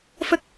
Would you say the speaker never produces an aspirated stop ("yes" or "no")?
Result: yes